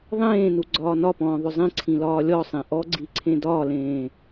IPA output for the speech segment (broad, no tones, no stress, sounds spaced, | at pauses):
ðˤ ẽː n u ɡ͡ǀ ɒː n ɒ p ɔ̃ː ðˤ ʊ zˤ ĩ ǀʰ ĩ l ɒː lʲ ɔ sˤ ẽ ʔ ɔ ɡ͡ǀ i ǀʰ ẽ d ɒː l ẽː